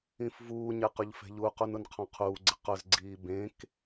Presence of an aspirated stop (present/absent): present